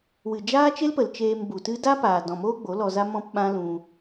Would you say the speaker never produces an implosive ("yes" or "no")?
no